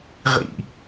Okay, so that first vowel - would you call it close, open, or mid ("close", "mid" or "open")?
close